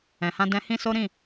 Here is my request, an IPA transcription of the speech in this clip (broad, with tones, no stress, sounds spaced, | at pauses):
ɛ̃˨ h ã˧ d ɛ̃˧ h ĩ˦ s o˦ ɾ ĩ˦˨